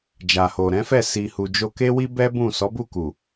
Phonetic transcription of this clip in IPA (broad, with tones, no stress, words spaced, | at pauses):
d͡ʒa˨ho˨ ɾɛ̃˨˦fɛ˦˨ si˨hu˨ d͡ʒo˧ke˦wi˦bɛ˦ bũ˦˨ sɔ˨˦bu˦˨ku˨